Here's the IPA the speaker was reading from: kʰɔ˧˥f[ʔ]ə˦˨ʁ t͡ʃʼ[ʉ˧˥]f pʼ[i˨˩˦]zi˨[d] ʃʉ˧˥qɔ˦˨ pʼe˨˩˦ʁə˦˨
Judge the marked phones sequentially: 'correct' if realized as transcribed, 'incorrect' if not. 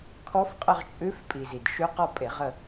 incorrect: qʼ, correct, incorrect: i˨, correct

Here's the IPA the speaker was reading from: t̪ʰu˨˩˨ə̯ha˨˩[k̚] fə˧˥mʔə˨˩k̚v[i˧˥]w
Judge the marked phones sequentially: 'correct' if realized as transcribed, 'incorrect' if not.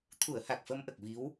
correct, correct

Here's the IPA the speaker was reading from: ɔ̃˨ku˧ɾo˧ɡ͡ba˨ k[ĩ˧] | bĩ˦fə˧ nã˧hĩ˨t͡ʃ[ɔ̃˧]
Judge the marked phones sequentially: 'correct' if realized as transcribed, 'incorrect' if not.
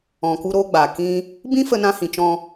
incorrect: ĩ˦, correct

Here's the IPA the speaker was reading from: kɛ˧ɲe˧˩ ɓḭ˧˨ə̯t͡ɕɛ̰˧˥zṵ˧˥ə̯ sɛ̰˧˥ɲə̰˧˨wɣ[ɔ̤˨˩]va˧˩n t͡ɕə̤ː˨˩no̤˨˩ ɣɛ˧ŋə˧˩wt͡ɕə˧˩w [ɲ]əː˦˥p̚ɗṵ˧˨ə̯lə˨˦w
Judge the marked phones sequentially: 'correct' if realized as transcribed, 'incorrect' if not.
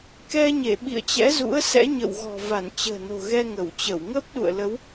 correct, incorrect: ŋ

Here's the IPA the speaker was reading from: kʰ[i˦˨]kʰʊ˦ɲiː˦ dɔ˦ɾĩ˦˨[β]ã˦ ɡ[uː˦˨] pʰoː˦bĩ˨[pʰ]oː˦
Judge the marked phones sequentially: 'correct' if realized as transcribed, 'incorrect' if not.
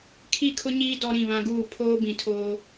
correct, correct, correct, incorrect: tʰ

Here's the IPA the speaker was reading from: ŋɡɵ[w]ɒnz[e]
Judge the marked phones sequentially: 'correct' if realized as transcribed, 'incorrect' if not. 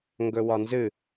correct, incorrect: ɨ

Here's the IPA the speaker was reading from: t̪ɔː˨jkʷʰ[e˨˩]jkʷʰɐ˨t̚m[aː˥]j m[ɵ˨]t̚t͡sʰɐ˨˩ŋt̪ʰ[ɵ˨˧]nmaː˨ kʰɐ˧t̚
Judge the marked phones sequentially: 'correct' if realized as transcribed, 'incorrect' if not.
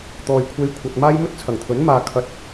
incorrect: e˧, correct, incorrect: ɵ˥, incorrect: ɵ˨˥

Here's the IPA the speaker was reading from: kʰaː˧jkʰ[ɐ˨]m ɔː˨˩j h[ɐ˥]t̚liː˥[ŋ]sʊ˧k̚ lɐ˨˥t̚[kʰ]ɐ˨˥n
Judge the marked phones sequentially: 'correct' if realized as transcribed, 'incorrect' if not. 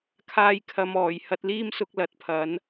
correct, incorrect: ɐ˧, incorrect: m, incorrect: pʰ

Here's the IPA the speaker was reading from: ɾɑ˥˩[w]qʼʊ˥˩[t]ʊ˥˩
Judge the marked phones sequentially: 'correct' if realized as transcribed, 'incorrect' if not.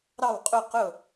correct, incorrect: q

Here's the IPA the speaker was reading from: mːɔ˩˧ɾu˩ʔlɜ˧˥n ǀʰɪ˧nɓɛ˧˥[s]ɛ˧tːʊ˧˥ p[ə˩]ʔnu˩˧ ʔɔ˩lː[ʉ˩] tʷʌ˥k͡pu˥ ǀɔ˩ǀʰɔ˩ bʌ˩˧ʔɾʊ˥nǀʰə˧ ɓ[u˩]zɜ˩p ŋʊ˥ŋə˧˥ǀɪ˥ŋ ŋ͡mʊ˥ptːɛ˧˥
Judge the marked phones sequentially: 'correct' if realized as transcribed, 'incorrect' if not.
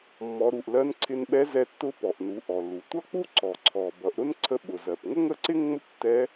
incorrect: z, incorrect: ɔ˩, incorrect: u˩, incorrect: ʊ˩

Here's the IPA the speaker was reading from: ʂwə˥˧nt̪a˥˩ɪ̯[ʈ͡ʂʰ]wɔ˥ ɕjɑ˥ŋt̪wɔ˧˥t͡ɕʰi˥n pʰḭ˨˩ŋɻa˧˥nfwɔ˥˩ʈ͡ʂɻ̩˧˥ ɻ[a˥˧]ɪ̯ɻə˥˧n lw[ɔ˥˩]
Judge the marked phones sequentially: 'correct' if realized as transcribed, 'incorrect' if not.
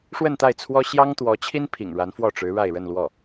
incorrect: t͡sʰ, correct, correct

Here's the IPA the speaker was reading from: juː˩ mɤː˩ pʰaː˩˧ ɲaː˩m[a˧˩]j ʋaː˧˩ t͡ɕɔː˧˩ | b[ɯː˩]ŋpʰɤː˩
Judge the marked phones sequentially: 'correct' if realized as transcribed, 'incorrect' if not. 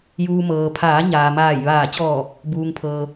incorrect: aː˧˩, incorrect: uː˩

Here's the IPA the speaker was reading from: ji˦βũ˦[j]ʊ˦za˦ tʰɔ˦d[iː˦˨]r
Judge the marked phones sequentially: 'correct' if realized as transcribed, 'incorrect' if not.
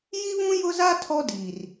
correct, incorrect: iː˨

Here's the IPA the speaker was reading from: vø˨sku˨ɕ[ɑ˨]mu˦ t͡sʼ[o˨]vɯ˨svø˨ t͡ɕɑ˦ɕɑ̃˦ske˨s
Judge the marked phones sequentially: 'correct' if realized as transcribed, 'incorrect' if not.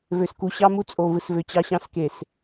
incorrect: ɑ˦, correct

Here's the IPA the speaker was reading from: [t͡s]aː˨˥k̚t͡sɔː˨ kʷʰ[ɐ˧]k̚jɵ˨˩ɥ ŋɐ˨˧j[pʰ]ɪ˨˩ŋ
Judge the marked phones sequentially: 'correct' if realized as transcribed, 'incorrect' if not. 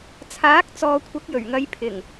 incorrect: t͡sʰ, incorrect: ɐ˨˥, correct

